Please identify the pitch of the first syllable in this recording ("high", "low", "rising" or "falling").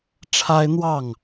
high